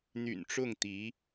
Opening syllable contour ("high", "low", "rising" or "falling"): low